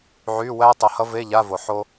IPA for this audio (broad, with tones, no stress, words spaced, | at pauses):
ʕy˧˥˧ wæ˥tˤʌ˨hʌ˥ve˧˥˧ ʎa˧˥˧vo˨ ħo˥